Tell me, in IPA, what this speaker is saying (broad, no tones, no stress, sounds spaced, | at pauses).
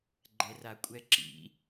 ɡ͡ǃ ɛ r a kʷʼ ɛ ǁ ḭ